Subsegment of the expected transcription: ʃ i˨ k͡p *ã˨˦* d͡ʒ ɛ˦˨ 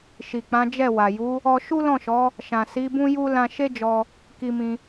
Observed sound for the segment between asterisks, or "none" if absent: ã˨˦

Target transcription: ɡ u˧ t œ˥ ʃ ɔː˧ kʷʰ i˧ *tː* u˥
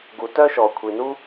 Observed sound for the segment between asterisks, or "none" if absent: n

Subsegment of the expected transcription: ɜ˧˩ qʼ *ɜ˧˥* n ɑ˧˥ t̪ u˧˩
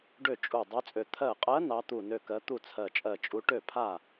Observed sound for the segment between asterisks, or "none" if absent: ɜ˧˥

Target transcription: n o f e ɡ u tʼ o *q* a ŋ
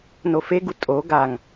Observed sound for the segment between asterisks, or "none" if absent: ɡ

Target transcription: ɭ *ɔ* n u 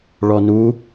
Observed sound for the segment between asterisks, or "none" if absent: ɔ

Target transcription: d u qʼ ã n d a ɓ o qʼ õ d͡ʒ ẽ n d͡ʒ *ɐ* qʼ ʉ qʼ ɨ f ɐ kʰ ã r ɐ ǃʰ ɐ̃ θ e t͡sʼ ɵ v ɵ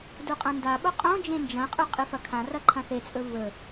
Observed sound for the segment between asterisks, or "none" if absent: ɐ̃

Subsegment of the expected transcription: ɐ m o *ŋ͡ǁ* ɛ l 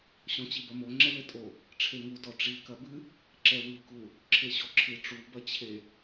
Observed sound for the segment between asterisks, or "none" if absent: ŋ͡ǁ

